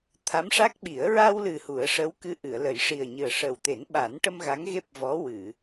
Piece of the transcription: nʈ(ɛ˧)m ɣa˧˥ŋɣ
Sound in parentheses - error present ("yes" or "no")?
yes